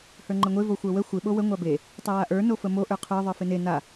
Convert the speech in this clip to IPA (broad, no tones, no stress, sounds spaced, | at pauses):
h ə˞ ŋ͡ǃ ə ŋʷ e v o xʷ ə˞ w ə xʷ ɪ ɓ o w ə ŋʷ a b e | tˤ ɪ w a ʔ ə˞ n o f ə m o ʔ ə˞ qʰ ə˞ ðˤ ə˞ f ɪ n e n a